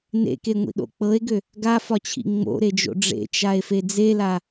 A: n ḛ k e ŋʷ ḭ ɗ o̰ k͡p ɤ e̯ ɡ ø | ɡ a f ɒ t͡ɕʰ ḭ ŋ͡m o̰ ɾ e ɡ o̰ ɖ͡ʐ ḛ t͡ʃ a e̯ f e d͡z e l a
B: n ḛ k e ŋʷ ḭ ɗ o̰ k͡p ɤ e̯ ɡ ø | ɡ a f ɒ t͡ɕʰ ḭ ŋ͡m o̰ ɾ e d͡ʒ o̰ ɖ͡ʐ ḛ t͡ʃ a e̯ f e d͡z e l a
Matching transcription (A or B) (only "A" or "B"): B